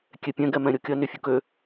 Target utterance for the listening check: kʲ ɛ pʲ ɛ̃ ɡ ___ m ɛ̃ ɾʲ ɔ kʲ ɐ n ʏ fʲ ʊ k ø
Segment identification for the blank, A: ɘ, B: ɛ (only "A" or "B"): B